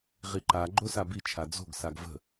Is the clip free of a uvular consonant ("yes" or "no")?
no